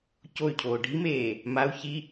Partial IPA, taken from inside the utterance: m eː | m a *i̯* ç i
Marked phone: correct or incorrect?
incorrect